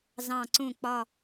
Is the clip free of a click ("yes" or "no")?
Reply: no